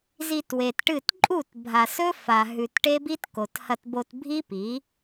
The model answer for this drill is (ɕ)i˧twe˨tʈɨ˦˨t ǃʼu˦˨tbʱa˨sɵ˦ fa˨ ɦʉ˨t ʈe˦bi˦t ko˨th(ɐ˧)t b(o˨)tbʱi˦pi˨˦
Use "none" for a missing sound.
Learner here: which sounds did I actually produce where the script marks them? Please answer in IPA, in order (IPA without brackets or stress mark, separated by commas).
z, ɐ˧, o˧